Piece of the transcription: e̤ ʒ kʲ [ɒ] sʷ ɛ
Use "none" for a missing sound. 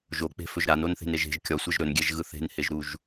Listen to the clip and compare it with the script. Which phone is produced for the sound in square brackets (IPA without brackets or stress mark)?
ɒ